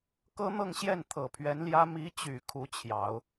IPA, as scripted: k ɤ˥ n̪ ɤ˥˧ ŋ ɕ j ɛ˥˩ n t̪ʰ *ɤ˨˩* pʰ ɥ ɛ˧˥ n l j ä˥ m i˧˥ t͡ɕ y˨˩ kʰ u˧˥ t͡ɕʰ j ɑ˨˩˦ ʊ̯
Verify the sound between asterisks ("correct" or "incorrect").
correct